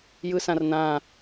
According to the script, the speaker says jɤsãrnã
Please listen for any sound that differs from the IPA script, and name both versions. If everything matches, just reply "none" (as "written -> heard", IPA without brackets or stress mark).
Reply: ɤ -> ɯ